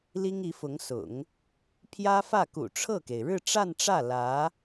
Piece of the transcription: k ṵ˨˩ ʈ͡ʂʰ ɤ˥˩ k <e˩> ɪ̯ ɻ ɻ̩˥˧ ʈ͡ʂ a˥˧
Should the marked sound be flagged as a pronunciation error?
no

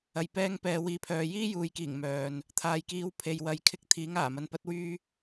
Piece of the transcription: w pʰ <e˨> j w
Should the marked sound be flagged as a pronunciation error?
no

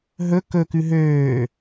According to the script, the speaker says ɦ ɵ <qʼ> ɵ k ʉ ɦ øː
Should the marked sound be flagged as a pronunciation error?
yes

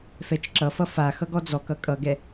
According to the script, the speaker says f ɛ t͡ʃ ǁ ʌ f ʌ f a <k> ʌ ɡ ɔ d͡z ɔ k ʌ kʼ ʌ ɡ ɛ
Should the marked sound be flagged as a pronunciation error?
yes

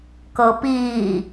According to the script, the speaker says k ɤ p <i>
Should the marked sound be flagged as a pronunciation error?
yes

